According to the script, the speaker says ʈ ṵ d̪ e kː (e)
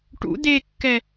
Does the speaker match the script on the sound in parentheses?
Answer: no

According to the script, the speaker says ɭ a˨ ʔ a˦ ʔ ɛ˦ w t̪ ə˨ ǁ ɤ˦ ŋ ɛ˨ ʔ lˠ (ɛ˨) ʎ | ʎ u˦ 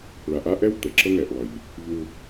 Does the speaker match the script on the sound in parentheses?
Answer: no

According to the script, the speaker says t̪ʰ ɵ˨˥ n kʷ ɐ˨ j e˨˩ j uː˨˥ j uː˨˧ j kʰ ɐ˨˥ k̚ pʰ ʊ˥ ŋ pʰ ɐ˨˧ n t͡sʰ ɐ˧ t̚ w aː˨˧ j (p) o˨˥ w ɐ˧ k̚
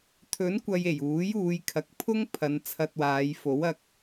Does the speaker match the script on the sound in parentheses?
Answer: no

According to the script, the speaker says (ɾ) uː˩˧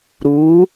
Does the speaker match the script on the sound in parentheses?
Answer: yes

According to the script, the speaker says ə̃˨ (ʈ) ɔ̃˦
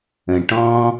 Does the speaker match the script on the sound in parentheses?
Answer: yes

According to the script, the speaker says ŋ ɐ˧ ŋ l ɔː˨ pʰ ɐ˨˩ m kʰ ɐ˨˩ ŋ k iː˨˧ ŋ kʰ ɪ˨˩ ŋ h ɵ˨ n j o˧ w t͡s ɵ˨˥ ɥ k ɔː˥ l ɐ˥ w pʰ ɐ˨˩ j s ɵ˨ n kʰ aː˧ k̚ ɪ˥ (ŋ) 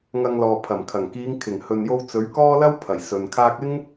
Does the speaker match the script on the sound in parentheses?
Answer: yes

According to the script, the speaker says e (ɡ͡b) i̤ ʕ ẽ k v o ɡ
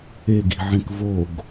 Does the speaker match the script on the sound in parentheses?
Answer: no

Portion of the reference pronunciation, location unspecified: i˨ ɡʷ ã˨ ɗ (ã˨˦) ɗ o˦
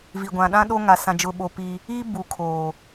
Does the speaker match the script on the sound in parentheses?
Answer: no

